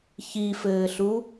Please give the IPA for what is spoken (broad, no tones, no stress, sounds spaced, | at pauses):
ç i f ɘː ɬ u